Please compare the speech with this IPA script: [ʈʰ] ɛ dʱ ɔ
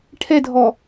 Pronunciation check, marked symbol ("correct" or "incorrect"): correct